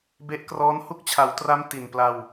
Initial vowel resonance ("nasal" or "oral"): oral